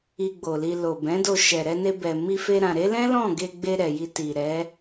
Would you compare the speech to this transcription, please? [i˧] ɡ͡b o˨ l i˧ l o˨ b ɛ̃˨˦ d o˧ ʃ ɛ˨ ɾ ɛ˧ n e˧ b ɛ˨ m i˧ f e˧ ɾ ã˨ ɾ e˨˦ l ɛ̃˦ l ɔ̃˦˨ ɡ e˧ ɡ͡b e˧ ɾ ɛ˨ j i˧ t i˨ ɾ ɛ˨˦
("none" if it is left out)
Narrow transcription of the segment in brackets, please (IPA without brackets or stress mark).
i˧